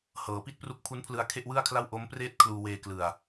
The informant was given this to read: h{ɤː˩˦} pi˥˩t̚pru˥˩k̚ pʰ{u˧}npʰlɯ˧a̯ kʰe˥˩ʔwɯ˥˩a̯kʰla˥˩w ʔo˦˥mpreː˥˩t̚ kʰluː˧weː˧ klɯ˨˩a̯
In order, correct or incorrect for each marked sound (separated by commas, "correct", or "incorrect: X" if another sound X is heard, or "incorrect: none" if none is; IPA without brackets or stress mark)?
correct, incorrect: u˦˥